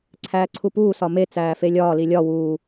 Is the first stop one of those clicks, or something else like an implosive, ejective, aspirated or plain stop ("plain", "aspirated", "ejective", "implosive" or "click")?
click